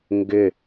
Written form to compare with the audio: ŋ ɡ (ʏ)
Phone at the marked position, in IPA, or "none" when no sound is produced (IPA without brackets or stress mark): ʏ